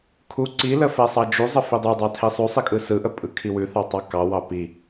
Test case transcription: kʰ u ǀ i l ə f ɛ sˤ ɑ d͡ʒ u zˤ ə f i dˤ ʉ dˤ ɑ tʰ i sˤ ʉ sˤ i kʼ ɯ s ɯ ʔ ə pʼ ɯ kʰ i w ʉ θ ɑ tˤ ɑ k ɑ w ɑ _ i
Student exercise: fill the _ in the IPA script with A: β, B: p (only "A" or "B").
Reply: B